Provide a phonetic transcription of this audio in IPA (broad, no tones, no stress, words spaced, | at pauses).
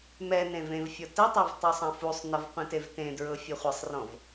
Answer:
mɛ nẽvẽvfʲɔ tɛtˤav tˤusˤɐ̃fusˤnɐv qʷĩtevtẽdɹɤ fʲɔχʷɐsˤrɔ̃v